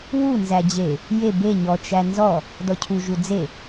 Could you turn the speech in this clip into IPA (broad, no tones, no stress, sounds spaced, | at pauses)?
w u n z æ d͡ʑ e | j e b e ɲ ɔ t͡ʃ æ n z ɔ | d ɔ cʰ u ʒ u d͡z e